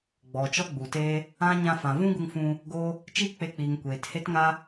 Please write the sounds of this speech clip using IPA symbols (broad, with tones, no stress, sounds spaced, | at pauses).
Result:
ɡ͡b ɔ˨ t͡ʃ ɔ˦ ɡ͡b u˨ t eː˦ | ã˦ ɲ ã˧ f ã˨ v ũ˦ ɡ u˧ ŋ f ũ˧ | ɡ oː˦ | t͡ʃ iː˦ k͡p e˧ k͡p iː˨ ŋ kʷ eː˨ t h e˦ t ŋ a˦